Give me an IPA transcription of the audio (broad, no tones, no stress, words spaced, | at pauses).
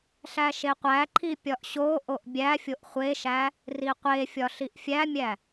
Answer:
ɬæʃeqʷæǃʰi pʲɒʔɕoʔoʔ bʲæfʲoʔ χʷeʃæ | riqʷefʲɒ ɬiʔfʲæmʲæ